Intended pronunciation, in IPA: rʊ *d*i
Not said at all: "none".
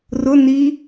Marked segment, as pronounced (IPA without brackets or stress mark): n